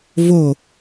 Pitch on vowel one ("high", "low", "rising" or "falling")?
falling